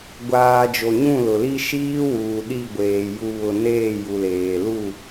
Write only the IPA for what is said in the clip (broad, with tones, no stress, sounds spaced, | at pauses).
ɡʷ aː˨ d͡ʒ o˨ ɲ ũ˦˨ l ʊ˨ l i˦ ʃ iː˦ w uː˨ ɗ i˦˨ ɡʷ eː˨ j u˨ β ʊ˨ n eː˦˨ j u˨ l eː˨ l u˦˨